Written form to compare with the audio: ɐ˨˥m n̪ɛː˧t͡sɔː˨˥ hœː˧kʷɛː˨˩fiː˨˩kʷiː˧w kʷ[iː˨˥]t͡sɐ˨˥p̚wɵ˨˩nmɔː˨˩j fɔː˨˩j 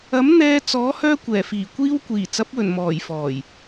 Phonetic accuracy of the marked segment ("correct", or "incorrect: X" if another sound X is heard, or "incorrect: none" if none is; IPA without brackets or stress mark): incorrect: iː˨˩